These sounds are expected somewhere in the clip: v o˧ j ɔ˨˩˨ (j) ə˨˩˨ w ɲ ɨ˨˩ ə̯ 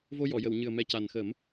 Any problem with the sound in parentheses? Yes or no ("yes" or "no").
no